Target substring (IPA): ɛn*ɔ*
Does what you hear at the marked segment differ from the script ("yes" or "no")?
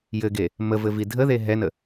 yes